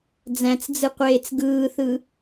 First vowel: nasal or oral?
nasal